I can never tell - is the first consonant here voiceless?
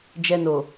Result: no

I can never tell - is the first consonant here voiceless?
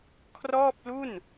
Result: yes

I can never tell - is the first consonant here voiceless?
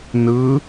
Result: no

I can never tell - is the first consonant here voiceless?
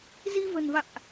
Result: no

